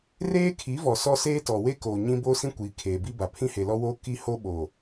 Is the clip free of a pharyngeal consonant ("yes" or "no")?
yes